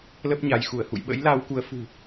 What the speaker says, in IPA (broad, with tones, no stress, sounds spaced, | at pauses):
l ə˦˥ p̚ ɲ a˨˦ j x u˧˩ ə̯ h ṵ˧˨ j ɓ ə̰˧˥ j l a˧ w k u˨˦ ə̯ f ṳ˨˩